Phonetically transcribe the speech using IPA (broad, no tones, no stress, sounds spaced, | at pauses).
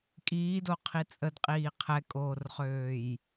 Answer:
kʼ iː d o qʰ i t͡sʼ ə d qʼ iː qʰ ɛ kʼ oː r χ øː j